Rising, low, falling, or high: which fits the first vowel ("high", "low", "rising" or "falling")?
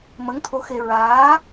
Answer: rising